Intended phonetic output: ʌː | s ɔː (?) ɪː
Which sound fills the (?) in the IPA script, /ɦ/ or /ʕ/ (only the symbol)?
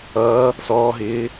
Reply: ɦ